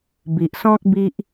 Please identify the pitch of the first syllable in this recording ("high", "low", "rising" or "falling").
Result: low